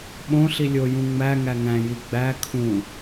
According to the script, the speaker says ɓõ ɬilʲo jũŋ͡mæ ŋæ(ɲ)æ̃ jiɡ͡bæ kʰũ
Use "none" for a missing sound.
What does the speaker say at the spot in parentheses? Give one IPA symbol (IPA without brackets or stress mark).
ŋ